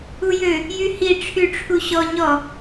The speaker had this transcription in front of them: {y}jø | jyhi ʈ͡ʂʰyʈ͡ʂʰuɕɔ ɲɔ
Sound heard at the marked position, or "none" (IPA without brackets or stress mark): u